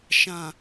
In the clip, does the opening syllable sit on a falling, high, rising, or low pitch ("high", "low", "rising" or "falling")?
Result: low